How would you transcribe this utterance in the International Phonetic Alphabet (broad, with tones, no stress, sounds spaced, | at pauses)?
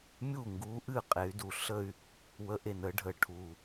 mʲ u˥˩ ŋ ɡ u˧˥ ʔ ɨ˥˩ qʼ e˩˧ y̯ d u˨˩ ɬ ə˥˧ y̯ | w ə˧˥ ʔ e˨˩ n ə˧˥ ɖʱ ə˨˩ ʈʰ u˨˩